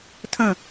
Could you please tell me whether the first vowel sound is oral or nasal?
nasal